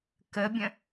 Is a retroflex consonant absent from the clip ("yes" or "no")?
yes